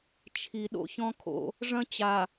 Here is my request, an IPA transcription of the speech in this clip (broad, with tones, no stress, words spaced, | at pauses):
t͡ʃʰi˨ ɗo̰˦çɔ̃˦kʰo̰˦ | ʐɐ̃˦ t͡ɕa˨